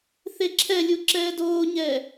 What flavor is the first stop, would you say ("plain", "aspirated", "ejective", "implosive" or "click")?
click